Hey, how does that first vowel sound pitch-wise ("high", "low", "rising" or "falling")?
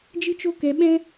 high